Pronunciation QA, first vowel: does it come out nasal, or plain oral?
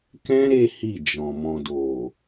nasal